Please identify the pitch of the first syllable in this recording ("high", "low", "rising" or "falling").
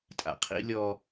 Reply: low